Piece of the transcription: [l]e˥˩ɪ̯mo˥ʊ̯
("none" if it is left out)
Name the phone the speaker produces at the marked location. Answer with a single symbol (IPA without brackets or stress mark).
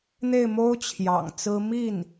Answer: n̪